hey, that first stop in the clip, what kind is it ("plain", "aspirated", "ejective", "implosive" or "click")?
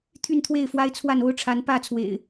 aspirated